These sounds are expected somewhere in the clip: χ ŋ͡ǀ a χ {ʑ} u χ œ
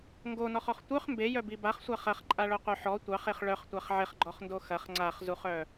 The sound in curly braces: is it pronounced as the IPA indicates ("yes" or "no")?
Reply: no